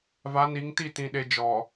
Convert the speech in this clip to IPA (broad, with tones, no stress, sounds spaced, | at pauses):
v a˨˦ n i˨˦ ŋ t i˦˨ t ĩ˨ ɗ e˨ d͡ʒ ɔ˨